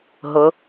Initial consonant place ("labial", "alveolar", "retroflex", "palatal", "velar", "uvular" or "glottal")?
glottal